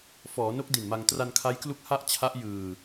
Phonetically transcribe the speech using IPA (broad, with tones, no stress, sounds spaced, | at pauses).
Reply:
f ɔː˩˦ n o˦˥ k̚ d i˨˩ n m a˧ ŋ t r a˧ n kʰ a˦˥ j k l u˦˥ k̚ h a˥˩ ʔ t͡ɕʰ a˦˥ ʔ j ɯː˧